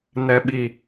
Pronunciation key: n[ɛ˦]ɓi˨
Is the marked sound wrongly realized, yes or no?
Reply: yes